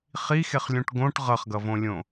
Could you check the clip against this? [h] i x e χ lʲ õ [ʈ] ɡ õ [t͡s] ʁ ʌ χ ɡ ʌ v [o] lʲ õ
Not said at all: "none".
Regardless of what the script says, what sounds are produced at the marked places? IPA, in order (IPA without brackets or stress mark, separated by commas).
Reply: χ, ʈ, ʈ, õ